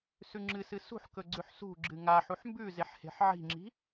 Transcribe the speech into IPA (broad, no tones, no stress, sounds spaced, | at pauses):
s ʉ ŋ͡ǁ ɨ s ɨ s ṳ ħ k ɵ ɡ͡ǀ ʉ ħ s ṳ ɡ͡ǁ ɨ ŋ a ħ u ħ m b ʉ z e ħ h e̤ ħ ʕ i̤ ŋ͡ǁ i̤